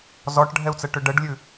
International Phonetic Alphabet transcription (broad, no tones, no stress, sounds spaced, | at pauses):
z ɔ ʈ ɖʱ ɛ u̯ t͡s ə ʈ ʏ ɖ ə ɖ lʲ ʉ